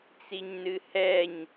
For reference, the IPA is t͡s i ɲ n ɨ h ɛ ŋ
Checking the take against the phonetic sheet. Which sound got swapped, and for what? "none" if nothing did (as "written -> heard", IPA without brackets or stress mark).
ŋ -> ɲ